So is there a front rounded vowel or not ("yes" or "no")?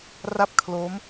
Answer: no